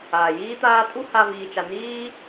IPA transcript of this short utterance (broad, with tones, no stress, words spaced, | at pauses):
aː˨jiː˦t̪aː˦ tʼu˦ha˧ viː˧t͡ʃa˧ niː˦